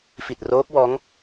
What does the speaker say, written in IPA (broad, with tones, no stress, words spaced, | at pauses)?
fi˨˩t̚roː˦˥k̚wɔː˦˥ŋ